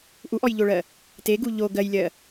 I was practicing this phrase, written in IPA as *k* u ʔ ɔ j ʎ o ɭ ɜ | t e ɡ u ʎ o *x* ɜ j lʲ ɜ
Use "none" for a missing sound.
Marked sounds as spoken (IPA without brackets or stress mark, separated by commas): ʔ, ɡ